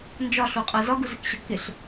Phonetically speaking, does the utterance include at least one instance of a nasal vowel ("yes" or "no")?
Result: no